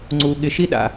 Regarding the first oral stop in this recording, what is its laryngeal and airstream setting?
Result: click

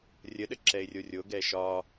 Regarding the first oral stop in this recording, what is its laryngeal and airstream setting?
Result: implosive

